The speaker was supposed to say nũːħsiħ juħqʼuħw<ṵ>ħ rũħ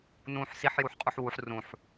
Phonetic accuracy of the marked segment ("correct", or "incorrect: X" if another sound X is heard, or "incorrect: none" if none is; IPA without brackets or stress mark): incorrect: u